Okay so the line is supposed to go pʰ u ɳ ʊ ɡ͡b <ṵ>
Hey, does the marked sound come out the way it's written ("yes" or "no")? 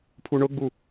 no